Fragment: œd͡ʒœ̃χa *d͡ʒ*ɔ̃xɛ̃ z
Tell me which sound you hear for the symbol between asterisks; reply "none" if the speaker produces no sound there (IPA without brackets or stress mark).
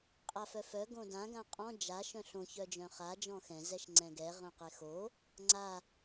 d͡ʒ